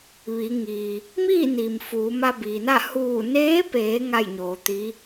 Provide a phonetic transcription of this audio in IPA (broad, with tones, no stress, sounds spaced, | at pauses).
ʋ i˩˧ ŋ i˩ | m iː˥˨ n i˩ m f uː˩˧ m a˧ b iː˩ n a˥˨ h uː˧˩ n eː˧˥ p eː˩˧ ŋ a˥˨ j ɲ oː˩˧ t̪ i˧˥